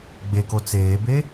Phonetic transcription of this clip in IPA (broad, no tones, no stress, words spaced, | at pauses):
ɡ͡beko t͡seːbe